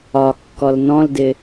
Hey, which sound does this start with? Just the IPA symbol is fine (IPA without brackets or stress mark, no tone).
ɒ